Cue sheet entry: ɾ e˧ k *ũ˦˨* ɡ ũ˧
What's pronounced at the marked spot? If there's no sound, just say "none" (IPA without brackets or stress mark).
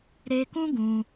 ũ˦